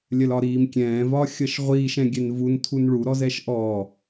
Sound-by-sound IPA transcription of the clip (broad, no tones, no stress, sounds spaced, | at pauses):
lʲ ɜ l ɒ ɾ iː m kʲ ɛ̃ː v ɒ xʲ ʌ ʃ ʁʷ iː ʃ ɛ̃ ɡʲ ɛ n v u n tʰ u n ɭ u ɾ ɔ z ɛ ʃ ʔ ɔ